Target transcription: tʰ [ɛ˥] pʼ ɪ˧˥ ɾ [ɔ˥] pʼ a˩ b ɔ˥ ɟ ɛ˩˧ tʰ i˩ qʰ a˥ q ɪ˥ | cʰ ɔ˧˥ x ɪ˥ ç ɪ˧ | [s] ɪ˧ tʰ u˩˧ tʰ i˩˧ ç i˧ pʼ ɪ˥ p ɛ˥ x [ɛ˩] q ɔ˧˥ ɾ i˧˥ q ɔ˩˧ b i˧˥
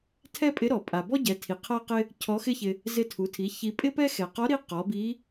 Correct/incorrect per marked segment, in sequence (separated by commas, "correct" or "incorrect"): correct, incorrect, incorrect, correct